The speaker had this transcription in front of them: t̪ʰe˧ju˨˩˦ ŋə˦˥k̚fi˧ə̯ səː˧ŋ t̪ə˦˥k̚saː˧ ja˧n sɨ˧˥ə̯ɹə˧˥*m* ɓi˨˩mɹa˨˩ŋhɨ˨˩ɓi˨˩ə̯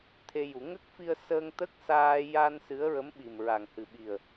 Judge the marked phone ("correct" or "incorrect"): correct